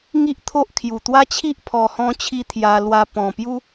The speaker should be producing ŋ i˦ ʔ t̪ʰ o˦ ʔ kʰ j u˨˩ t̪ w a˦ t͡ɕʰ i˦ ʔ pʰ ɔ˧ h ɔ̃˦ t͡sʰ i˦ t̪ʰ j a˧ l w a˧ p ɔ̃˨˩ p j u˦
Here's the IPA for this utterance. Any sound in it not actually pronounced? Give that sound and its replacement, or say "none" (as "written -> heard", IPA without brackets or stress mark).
t͡sʰ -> t͡ɕʰ